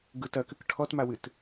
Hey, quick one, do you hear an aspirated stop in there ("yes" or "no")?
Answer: yes